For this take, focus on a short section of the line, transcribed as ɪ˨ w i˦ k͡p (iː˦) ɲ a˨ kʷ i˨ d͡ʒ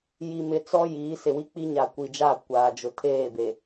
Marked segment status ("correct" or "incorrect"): incorrect